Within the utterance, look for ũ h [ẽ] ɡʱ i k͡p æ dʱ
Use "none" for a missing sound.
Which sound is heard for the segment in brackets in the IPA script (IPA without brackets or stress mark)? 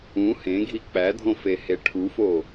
ẽ